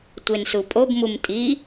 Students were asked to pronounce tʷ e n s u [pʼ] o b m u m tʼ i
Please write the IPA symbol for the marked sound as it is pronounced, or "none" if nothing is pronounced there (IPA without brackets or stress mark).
pʼ